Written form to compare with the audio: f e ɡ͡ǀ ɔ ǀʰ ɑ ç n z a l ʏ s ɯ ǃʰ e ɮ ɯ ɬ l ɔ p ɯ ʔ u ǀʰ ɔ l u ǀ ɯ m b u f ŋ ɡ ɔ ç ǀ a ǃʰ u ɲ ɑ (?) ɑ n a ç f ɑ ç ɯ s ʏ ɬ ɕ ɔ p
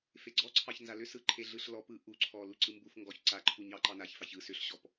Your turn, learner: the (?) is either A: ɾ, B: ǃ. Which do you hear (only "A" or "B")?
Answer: B